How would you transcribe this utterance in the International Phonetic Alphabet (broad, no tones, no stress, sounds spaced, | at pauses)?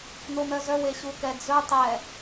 n o m œ z œ w e ɕ u k ɛ d͡z ɵ tˤ ɛ